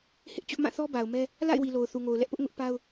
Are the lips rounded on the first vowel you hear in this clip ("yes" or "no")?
no